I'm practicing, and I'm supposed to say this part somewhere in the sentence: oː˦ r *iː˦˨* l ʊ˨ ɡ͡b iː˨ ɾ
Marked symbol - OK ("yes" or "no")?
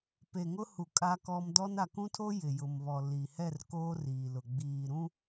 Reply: no